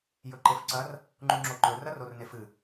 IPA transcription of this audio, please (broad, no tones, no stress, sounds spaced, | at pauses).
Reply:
j ɵ ǃ e f ǀ ɐ r | ŋ͡ǃ u ŋ͡ǁ o ǃ ɵ r ɐ r o r n e f ɨ